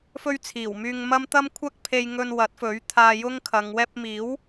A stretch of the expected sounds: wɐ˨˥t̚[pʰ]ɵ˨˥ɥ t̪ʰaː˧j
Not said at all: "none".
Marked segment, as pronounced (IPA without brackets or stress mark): f